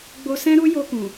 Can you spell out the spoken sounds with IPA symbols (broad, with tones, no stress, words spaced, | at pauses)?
ɡ͡bo˧sɛ̃˦ɾu˦ jo˧kũ˨